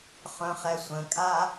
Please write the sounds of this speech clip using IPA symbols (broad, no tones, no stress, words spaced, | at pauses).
χœ̃χɛsʷə̃kʼa